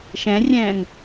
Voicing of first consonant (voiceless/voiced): voiceless